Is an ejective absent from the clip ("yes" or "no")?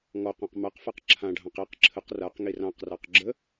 yes